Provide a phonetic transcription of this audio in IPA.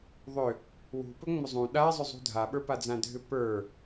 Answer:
ðˤ ʏ | w ṳ p ɵ ŋ͡m ɵ zˤ ũ ɗ a zˤ ʏ zˤ ṳ dʱ a ɓ ə˞ p a d͡z ã dʱ ʏ p ə˞

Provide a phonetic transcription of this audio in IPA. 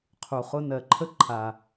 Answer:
qʰ u˨ χ ʊ˦ n ɜ˨ ǃʰ ə˦ ǃʰ a˨

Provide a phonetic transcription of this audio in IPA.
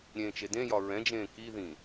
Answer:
ɾʲ ẽː t͡ʃ e d ẽ j ɒ ɹ ɛ̃ d͡ʒ ẽː k i ð ĩ

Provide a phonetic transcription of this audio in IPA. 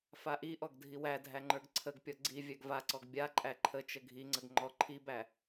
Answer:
f a ʔ i ʔ ɔ ɡ dʱ i w æ dʱ æ ŋ͡ǃ ə˞ ɡ ǀʰ ə ɡ pʲ ɔ ɡ͡ǀ i vʲ æ ɡ v a ǀ ɔ ɡ bʲ a ǃʼ æ ǃʰ ə t͡ʃ ə ɡʱ i ŋ͡ǀ ə ɡ ŋ͡ǃ ɔ ǃʰ i b æ

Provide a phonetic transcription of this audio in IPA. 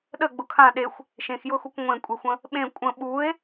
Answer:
ɗ ə ɡ͡b ʊ kʰ ã ɗ e xʷ | ʃ ẽ x j ʊ x u kʷ ŋʷ ẽ kʷʼ e xʷ ə̃ | ɓ ẽ kʷʼ ə̃ ɓ u e̯

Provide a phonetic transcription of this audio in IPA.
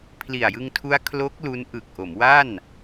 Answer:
pʰ l i˨˩ a̯ j ɯ˧ ŋ tʰ u˦˥ a̯ kʰ l o˦˥ k̚ l u˦˥ n ʔ ɯ˨˩ k̚ ʔ o˩˦ m w a˥˩ n

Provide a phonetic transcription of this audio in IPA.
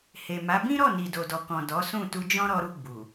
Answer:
h e˨ m a˨˦ b ĩ˦ ɾ ɔ˦˨ n i˨ d o˨ d ɔ˨ k ɔ̃˨ d ɔ˨˦ s ũ˦˨ t u˧ d͡ʒ ɔ̃˦ ɾ ɔ˧ ɾ u˧ ɡ͡b u˨

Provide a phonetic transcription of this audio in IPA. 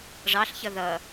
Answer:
ʐ ɑ ɬ ç ʌ ð ʌ

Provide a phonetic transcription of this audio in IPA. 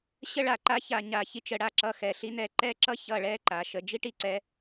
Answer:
ɕ ə˥ ɭ a˧˩ ǃ a˥ ç a˧ ɲ a˧˩ ç i˧ t͡ʃ ə˩˧ ɽ a˧˩ ǁ ʌ˧˩ x ɛ˧˩ ɬ i˥ n ɛ˥˧ ǃ ɛ˥˧ ǁ ʌ˥ ç ʌ˧˩ ɭ ɛ˥˧ ǃ a˩˧ ʃ ə˧ d͡ʒ i˥˧ ʈ i˧˩ ǀ ɛ˧

